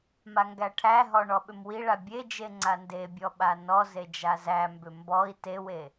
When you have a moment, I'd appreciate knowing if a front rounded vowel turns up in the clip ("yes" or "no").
yes